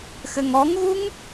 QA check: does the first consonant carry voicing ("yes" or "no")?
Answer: no